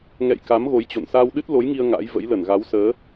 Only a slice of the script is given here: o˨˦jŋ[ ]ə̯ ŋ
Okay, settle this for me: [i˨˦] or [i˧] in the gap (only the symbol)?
i˧